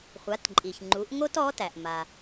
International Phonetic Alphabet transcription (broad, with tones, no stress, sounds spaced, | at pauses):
χʷ a˩˧ t ǃʼ i˩ ç ŋ͡ǃ u˩˧ ʔ ŋ o˥ t ɔ˧˥ t æ˩ ʔ m a˩